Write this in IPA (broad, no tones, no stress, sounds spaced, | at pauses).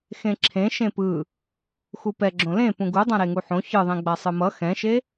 x ẽ ǁʰ ẽ ʃ ẽ p ɯ | x u p ɛ ɡ͡ǁ õ l ẽ p ũ ɡ u dˤ ã ɾ e ŋ u ħ õ ç ɯ ðˤ ẽ ɡ͡b a sˤ ɯ m ʌ x ɛ̃ ʃ e